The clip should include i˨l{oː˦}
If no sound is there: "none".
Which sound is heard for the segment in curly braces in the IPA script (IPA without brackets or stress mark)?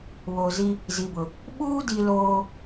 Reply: oː˨